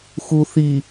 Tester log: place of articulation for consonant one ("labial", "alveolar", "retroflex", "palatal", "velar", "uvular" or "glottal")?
velar